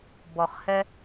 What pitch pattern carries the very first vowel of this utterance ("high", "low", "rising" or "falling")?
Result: low